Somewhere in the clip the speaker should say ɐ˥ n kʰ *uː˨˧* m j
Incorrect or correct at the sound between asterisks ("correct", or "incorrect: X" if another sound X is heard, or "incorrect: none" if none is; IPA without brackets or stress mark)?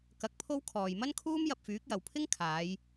incorrect: uː˥